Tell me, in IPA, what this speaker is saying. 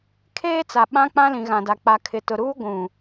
kʰeː˦t͡sa˨ ɓã˦ k͡pã˦lĩ˨ɣã˨da˨ k͡pa˨kʰɪ˨tʊ˨ ɾuː˦ ɡʷũ˨

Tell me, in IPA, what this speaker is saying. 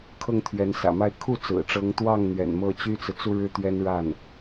kʰɤ˥˩ŋt̪ʰɥɛ˧˥nsä̰˨˩ma˥˧ɪ̯ kʰu˥˩ t͡sɹ̩˨˩ʈ͡ʂɤ˧˥ŋt̪wɑ˥˩ŋ n̪ɥɛ̰˨˩nmɤ˥˩t͡ɕy˥t͡sɹ̩˨ t͡su˥˧ɻɻ̩˥˩ t̪ɥɛ˥nɻa˥˩n

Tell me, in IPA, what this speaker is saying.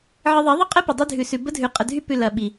ʕə˧ðˤe˨˦ðˤə˦ qʼə˦ pɐ˨dˤy˧dʱʉ˨sʉ˨ bə˦dʱʉ˨ qʼə˨dʱy˧pʉ˨ lɐ˨ ɓi˨

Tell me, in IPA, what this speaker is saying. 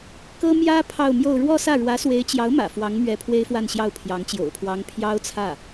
kɤ˥ mjä˥ pʰɑ˥˧ʊ̯mjo˥˧ʊ̯ ɻwɔ˥˧sä˥˩ ɻwä˧˥swe˧˥ɪ̯t͡ɕjɑ˧˥ʊ̯mä̰˨˩ fwɑ˧˥ŋmɥɛ˧˥ pʰwe˥ɪ̯fwa˥˧nɕjɑ˥˩ʊ̯pʰjɑ˧˥ŋ t͡ɕjo̰˨˩ʊ̯pʰwɑ˧˥ŋ pʰjɑ˥ʊ̯t͡sʰä˥˩

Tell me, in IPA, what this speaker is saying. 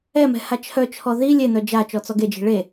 ɛmɛ̤ hat͡ʃʰœt͡ʃʰɔ ði lʲen̪œ d͡ʒa t͡ʃɔt͡sɔɡed͡ʒi̤ ɭe

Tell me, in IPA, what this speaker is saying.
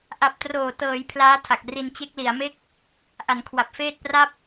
ʔa˨˩p̚troː˨˩tɤː˩˦j pʰlaː˦˥tʰa˨˩k̚ ri˧n t͡ɕe˦˥k̚li˩˦a̯ me˦˥k̚ | ʔa˩˦n kʰwa˨˩p̚feː˥˩t̚pra˥˩p̚

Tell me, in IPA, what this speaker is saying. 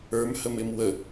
ə˞mhəmɪm wə

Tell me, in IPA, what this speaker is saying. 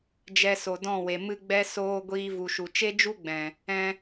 d͡ʒɛ˧so˨dɔ̃˦˨we˨ mɨ˧ɡ͡bɛ˧ soː˧ ɡʷiː˧vu˨ʃu˨ t͡ʃe˦d͡ʒu˦ ɡ͡bɛ̃˨ | ɛ̃˧

